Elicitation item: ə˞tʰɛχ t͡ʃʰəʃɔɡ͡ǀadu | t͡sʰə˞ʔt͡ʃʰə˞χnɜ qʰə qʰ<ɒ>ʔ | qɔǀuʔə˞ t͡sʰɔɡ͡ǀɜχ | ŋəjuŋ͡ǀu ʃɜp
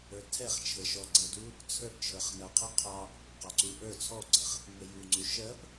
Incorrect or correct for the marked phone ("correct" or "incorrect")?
incorrect